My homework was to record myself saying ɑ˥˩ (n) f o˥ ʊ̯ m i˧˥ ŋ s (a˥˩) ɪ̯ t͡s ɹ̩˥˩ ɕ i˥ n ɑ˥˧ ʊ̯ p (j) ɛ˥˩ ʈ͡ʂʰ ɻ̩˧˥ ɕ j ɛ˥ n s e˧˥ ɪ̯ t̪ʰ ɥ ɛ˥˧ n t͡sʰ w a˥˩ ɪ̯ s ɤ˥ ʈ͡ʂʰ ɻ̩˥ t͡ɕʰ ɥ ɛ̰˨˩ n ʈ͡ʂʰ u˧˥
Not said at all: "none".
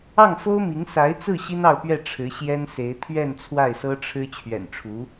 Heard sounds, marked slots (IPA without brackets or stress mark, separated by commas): ŋ, a˧˥, ɥ